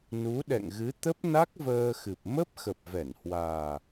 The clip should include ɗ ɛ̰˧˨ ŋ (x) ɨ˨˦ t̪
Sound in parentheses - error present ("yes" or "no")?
yes